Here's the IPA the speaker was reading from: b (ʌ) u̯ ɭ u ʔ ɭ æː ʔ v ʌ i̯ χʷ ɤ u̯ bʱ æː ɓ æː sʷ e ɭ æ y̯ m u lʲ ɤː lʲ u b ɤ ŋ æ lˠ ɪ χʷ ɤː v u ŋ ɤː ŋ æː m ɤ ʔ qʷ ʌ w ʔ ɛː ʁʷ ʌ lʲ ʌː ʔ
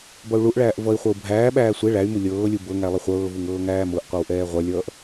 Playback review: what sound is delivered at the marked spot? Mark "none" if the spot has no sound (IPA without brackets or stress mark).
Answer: ʌ